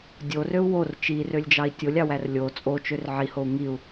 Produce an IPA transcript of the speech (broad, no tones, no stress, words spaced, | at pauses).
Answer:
dʲorøu̯ wor t͡ʃirølʲd͡ʒɑi̯ tʲolʲɑwær lʲo t͡sʼot͡ʃør ʕihou̯ ŋiu̯